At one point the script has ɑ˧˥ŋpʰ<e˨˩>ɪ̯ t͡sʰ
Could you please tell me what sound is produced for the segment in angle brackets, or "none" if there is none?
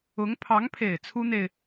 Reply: e˨˩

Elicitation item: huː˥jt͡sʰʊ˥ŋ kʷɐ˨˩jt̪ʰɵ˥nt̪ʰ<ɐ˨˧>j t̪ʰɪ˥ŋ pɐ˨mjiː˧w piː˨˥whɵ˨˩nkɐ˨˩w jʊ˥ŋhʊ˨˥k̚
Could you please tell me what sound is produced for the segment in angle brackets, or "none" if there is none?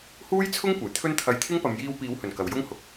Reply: ɐ˧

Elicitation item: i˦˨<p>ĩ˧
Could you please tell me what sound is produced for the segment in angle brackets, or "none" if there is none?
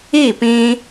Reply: p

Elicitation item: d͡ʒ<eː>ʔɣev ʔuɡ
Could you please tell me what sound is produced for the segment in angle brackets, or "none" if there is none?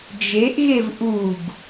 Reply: e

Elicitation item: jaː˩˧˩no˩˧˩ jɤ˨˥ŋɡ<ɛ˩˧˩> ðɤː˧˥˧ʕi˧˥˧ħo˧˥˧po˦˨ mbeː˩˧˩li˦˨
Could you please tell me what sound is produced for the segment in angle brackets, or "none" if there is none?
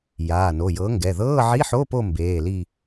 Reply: ɛ˩˧˩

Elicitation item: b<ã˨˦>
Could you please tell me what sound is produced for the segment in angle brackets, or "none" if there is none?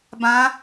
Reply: ã˨˦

